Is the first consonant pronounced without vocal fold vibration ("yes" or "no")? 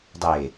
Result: no